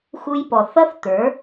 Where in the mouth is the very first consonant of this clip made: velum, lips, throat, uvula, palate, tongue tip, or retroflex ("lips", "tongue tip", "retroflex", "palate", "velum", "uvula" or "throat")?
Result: velum